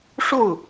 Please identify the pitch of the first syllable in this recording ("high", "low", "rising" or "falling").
falling